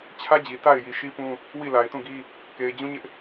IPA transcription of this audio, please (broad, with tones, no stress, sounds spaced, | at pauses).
t͡ɕʰ ä˦ d͡ʑ i˨ t a˦˨ ɪ̯ j i˨ ʃ i˦ p ũ˦ | w i˦˨ l a˨ ɪ̯ t ũ˦˨ ɡ i˦ | k e˨ ɪ̯ d͡ʑ ũ˦ ɲ ɪ˦ ʔ